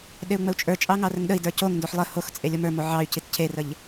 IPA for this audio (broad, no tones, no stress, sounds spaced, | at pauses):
ɗ e u̯ ŋ͡m ə u̯ t͡ʃʼ ə˞ t͡ʃʼ ɑ ŋ ɑ r ə ŋ ɗ ə i̯ d ə˞ c o ŋ n d o ħ lˠ ə h o x t͡sʼ e lʲ o m ə˞ m o ʕ ɑ y̯ c i t cʰ e r ə ʎ